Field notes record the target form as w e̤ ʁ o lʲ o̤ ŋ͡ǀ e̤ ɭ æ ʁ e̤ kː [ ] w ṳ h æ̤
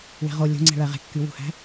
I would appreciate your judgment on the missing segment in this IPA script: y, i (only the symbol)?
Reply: y